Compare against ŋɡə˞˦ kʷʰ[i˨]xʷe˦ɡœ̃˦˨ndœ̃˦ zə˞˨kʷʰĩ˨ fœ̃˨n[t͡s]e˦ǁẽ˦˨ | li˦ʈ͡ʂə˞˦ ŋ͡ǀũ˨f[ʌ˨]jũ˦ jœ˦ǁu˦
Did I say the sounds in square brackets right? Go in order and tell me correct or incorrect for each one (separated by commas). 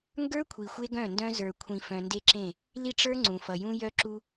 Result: correct, incorrect, correct